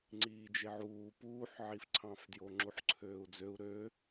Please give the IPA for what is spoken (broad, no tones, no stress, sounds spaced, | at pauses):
ŋ͡ǀ iː d͡ʒ e ʕ uː p uː ħ ʕ i f ǀʰ ɑ̃ f d j o ŋ͡ǁ u ħ ǀʰ øː u̯ d͡z ø u̯ ɾ ø